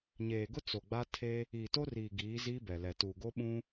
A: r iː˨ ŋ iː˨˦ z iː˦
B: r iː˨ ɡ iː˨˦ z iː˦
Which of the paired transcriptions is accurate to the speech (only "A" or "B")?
B